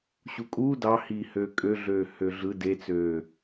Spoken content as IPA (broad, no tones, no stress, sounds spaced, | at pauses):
ɕ u kʼ uː d ɑ h iː h øː kʼ ø ɮ øː h ø ɮ ɯ d e t͡s øː